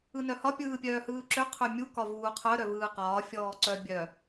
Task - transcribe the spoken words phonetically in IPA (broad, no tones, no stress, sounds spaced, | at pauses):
ɯ n œ h ɒ pʲ ɯː pʲ œː h ɯː ǁ ø qʰ ø mʲ u k ɒ v uː qʰ œ ɾ œ v ɯː q ɒː fʲ ɔː ǀ œ bʲ œ